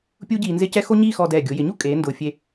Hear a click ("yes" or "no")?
no